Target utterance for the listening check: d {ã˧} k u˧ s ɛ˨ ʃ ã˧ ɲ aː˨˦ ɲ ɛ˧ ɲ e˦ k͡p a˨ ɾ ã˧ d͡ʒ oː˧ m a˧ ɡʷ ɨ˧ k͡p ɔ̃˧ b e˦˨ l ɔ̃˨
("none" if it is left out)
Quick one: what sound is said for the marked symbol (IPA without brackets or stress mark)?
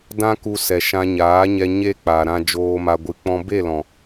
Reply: ã˧